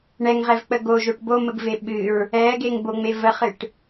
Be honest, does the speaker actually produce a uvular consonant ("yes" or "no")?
yes